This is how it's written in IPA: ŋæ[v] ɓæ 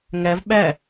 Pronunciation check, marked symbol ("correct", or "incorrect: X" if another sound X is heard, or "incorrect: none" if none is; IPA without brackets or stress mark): correct